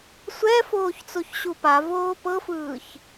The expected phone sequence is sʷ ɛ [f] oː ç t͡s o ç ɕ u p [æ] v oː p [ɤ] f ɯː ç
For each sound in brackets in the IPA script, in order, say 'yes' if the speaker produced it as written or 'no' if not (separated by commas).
yes, no, yes